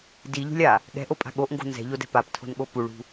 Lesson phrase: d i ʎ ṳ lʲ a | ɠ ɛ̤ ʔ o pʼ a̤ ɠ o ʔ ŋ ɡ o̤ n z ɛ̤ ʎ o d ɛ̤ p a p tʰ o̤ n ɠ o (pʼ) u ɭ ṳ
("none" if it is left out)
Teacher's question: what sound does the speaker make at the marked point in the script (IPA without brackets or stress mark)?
p